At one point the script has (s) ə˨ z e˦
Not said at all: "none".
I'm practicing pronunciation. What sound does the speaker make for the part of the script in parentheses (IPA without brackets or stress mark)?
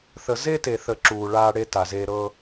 θ